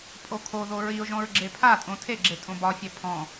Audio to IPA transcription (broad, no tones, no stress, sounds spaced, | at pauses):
pʼ o kʰ o ð o ɹ i ʊ̯ ʒ ɔ̃ ɹ ɡ͡ǁ e pʰ a tʼ õ tʰ e ɡ͡ǁ e tʼ õ b ɒ fʲ ɛ pʰ ɔ̃